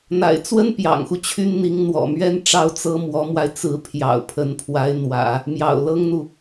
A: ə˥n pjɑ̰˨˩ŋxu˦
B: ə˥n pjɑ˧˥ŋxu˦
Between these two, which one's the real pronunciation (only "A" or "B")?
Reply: A